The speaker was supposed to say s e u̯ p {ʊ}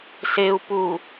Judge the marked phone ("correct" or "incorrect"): incorrect